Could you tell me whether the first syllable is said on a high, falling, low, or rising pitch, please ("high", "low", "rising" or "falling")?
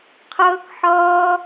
high